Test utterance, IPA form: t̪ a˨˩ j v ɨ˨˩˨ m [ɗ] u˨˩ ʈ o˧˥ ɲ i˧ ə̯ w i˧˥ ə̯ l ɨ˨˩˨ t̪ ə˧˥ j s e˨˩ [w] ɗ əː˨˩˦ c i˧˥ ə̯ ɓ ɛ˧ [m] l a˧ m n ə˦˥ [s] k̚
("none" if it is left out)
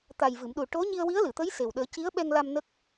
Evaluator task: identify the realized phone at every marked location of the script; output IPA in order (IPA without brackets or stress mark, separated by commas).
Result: ɗ, w, ŋ, none